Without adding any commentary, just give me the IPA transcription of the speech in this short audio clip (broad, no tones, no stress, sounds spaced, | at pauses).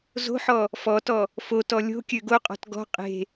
z o̤ ħ ɔ | f ɔ t ɔ | f o t ɔ lʲ o̤ kʲ ø ɡ o qʼ ɔ̤ t ɡ ɔ̤ qʼ e̤